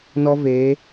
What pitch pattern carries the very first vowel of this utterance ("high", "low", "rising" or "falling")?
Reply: high